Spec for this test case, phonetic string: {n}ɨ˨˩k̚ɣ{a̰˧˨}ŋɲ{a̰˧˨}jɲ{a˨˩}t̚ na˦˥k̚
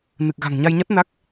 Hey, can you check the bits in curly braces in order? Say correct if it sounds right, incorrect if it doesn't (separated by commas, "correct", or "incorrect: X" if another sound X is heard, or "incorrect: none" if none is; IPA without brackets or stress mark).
correct, incorrect: a̤˨˩, incorrect: a˧, incorrect: a˦˥